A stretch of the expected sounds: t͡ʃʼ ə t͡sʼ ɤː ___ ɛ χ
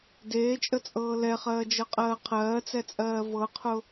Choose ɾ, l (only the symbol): l